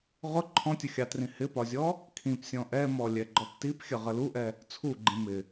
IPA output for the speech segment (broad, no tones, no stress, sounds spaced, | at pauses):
ʁ ʊ ǃʰ ɔ̃ tʲ ʊ xʲ ɑ t r ĩ h ɪ p ɒ zʲ ɔ | kʰ ĩ p sʲ ɔ̃ ʔ ɛ m ɔ lʲ ɛ ɡ͡ǃ ɔ p t i p xʲ ə ʁ ə l u ʔ ɛ | t͡sʰ u ɡ͡ǃ ĩ m ɪ